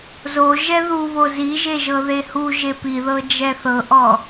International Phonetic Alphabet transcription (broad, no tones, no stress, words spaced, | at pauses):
zo ʒɛðuβo ziʒe ʒɤðehuʒe piðɤ d͡ʒɛθɤʔɔ